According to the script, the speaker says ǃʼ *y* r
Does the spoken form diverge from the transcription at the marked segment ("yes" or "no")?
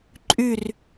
no